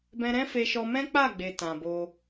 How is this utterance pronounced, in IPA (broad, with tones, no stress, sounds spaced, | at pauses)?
b ɛ̃˧ ɾ ɛ̃˦ f e˧ ʃ ɔ˧ m ɛ̃˦ k͡p a˦˨ ɡ͡b e˨ t ã˨ b o˧